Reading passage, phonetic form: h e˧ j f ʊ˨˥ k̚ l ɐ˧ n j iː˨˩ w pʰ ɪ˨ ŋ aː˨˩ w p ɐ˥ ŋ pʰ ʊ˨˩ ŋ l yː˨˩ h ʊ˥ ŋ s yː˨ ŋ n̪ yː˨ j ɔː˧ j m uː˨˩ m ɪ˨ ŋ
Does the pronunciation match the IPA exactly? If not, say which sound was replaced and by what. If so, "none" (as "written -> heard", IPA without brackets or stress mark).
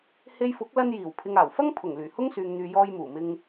p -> f